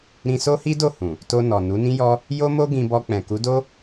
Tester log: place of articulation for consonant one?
alveolar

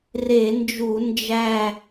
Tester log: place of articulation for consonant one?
alveolar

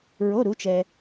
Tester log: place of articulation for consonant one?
alveolar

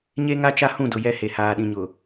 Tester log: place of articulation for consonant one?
palatal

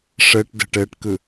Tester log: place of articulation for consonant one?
retroflex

